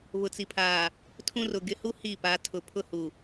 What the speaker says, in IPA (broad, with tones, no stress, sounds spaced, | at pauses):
β ʊ˨ t͡s i˨ pʰ aː˨ | tʰ ũ˦ r ʊ˨ ɡ ɪ˨ h u˦ h i˦˨ p a˨˦ tʰ ʊ˨ pʰ ʊ˦ h u˨